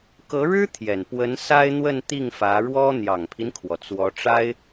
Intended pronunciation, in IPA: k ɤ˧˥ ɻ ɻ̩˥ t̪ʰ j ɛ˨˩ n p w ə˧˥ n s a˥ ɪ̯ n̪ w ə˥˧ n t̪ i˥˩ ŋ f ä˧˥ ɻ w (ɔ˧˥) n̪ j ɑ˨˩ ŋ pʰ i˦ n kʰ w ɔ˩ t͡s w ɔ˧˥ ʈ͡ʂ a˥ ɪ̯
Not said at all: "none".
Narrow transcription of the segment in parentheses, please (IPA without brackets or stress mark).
ɔ˥